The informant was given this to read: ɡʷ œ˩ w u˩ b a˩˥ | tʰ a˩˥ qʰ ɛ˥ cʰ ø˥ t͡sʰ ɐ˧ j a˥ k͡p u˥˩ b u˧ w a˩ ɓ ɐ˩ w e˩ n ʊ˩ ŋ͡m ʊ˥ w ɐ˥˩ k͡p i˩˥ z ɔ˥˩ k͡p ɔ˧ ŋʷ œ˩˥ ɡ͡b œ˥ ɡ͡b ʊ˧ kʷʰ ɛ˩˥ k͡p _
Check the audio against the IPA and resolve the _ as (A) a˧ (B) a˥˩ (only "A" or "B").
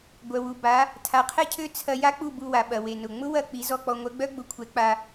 A